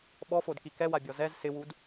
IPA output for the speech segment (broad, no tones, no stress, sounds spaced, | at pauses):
ɓ ɔ f o d k i k ɛ w a bʲ ɔ z ɛ z s ɪ w u d